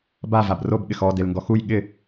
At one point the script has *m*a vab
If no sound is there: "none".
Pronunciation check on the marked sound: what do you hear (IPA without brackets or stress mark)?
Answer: b